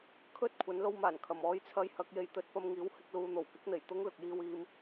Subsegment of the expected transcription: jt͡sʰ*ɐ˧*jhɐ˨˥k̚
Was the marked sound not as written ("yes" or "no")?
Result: yes